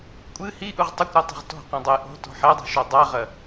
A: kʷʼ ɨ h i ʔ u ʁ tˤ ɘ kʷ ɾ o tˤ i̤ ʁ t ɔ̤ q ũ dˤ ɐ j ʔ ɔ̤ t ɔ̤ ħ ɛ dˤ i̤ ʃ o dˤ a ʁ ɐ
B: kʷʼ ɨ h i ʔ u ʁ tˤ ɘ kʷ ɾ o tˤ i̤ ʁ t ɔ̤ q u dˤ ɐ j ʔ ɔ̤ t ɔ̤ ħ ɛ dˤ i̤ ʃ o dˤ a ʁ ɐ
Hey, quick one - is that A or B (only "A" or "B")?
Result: A